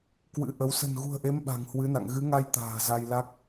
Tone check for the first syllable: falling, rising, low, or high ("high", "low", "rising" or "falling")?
rising